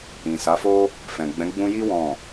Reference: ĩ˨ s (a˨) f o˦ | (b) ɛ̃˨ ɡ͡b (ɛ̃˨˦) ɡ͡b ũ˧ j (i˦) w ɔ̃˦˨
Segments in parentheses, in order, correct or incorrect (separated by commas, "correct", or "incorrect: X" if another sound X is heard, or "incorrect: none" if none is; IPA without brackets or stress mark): incorrect: a˨˦, incorrect: f, correct, correct